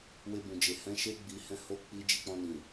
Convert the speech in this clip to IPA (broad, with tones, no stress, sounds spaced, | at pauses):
w e˧ b ũ˨ d͡ʒ e˨ h ɛ̃˨˦ ʃ e˧ ɡ͡b i˨ h ɛ̃˧ h o˧ k͡p i˧ d͡ʒ i˧ k͡p ɔ̃˧ n ĩ˨